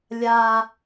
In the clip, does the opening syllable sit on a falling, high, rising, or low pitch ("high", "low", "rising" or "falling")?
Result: low